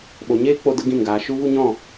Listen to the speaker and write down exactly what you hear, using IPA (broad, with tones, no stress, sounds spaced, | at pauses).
ɓ o˨ ɲ eː˦ k͡p o˧ d ə˧ ɡ ĩ˦˨ n ɡ aː˧ ʃ u˦ v u˦ ɲ ɔ̃˦˨